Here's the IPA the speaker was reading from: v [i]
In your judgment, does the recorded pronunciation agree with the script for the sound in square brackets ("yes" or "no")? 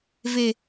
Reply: no